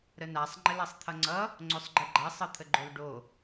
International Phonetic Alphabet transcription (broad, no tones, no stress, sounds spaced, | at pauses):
ɾ ə n a sˤ ŋ͡ǃ ə l a sˤ t̪ʰ ʌ ŋ͡ǀ ʌ | ŋ͡ǀ o sˤ ɡ͡ǃ ə ɡ͡ǃ a sˤ ə t̪ʰ ə ɡ͡ǃ o l ɖ o